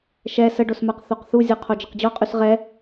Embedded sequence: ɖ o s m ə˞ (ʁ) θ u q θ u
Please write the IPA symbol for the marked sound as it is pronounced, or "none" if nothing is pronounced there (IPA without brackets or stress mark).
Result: q